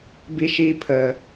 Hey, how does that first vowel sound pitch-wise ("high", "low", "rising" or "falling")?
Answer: high